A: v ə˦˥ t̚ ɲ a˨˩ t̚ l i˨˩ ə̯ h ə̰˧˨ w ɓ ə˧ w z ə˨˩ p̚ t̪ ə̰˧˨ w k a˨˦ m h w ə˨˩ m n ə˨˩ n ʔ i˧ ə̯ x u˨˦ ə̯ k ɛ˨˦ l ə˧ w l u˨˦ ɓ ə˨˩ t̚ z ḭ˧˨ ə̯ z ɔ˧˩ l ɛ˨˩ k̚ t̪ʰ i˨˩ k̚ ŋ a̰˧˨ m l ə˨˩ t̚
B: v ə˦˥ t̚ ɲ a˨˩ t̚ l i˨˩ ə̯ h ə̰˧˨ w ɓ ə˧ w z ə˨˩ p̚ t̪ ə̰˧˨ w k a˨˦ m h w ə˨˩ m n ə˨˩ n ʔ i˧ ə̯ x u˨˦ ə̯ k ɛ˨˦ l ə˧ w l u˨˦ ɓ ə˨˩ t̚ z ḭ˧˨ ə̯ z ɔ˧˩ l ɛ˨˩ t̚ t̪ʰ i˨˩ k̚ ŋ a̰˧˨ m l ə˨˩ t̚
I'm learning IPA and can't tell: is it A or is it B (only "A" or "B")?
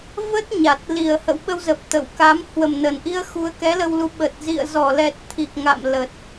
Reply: B